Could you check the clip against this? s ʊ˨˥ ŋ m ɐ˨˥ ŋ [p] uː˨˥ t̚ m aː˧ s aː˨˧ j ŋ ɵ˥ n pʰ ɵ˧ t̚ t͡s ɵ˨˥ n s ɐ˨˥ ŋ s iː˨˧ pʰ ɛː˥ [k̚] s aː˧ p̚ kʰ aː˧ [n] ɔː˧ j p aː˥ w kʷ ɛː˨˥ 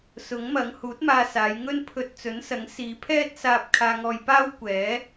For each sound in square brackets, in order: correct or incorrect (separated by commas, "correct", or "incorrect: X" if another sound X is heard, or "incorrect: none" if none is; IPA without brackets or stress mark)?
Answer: incorrect: h, incorrect: t̚, incorrect: ŋ